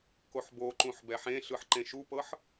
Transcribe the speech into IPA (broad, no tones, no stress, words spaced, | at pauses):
koħboǃũħ bɛħẽɬɯħ ǃẽʃupɤħ